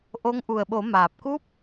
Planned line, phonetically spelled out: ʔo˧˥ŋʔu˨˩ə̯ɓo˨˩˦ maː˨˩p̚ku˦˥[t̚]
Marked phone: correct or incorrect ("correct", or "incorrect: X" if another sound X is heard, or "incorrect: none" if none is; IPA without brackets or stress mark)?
incorrect: p̚